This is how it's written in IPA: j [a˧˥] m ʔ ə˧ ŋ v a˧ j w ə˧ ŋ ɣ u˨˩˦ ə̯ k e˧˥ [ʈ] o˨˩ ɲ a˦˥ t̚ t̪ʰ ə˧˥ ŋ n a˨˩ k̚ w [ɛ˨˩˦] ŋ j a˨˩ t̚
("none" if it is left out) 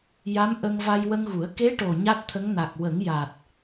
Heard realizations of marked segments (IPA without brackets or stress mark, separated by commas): a˧˥, ʈ, ə˨˩˦